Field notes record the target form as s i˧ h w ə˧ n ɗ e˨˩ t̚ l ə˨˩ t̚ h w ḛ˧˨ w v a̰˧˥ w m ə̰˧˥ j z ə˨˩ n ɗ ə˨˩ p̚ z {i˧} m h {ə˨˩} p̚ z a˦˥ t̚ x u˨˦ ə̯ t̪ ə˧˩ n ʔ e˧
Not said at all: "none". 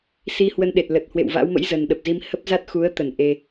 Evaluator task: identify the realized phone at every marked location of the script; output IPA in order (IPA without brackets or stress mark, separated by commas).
i˧, ə˦˥